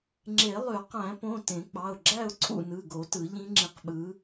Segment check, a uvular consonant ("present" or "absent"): present